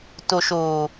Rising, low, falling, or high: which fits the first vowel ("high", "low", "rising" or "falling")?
low